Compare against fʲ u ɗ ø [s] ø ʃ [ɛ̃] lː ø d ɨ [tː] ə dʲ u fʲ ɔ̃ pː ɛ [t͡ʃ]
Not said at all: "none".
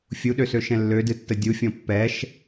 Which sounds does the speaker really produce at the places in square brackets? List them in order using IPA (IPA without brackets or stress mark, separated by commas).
s, ɛ̃, tː, ʃ